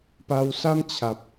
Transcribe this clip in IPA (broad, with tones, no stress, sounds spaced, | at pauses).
p a˧ w s a˦ m t͡ɕʰ a˨ p̚